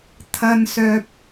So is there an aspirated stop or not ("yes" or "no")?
yes